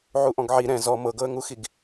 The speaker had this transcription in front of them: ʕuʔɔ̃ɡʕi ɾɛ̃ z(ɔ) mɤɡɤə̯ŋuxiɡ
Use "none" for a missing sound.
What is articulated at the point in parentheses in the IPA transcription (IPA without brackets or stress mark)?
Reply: ɔ